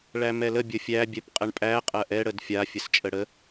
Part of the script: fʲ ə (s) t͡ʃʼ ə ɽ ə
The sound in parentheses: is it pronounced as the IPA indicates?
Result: yes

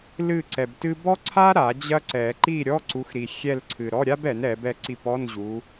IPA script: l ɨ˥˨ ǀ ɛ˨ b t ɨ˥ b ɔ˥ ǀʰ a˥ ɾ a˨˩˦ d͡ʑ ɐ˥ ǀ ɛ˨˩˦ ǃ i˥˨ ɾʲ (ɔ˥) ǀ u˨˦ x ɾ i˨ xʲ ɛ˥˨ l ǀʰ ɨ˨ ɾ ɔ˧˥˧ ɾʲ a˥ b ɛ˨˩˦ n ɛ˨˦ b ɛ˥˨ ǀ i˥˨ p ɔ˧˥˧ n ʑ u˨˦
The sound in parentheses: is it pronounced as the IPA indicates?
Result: no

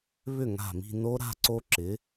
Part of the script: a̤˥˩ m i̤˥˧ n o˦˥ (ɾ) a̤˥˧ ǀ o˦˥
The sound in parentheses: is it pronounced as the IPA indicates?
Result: yes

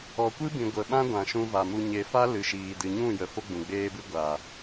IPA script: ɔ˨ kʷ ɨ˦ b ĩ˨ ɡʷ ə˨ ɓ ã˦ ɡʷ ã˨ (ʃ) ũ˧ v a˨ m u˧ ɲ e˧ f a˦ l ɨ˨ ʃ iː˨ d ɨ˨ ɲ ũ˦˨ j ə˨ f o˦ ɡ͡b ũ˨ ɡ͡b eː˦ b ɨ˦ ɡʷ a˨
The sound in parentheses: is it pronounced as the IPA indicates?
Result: yes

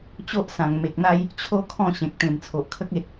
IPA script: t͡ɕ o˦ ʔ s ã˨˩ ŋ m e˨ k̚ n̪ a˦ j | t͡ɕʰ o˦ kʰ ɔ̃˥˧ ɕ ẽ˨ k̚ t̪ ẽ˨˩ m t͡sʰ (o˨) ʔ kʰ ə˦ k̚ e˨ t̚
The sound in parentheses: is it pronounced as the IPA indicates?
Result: yes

